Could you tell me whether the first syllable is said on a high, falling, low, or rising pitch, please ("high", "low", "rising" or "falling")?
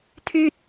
high